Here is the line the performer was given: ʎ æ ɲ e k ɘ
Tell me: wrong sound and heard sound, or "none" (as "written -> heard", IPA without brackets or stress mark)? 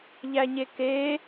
ɘ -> e